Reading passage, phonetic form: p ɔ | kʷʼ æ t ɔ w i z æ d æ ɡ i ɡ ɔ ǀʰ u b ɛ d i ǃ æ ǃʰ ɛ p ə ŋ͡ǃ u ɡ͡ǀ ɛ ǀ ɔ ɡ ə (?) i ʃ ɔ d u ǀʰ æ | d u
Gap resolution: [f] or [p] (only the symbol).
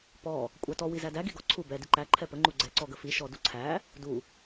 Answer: f